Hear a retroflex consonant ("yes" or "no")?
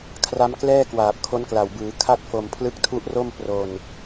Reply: no